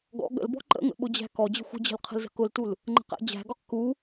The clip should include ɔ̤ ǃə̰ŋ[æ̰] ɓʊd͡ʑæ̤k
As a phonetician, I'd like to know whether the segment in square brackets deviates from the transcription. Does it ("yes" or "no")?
yes